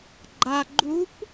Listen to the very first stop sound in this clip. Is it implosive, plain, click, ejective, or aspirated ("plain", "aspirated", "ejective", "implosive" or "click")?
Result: click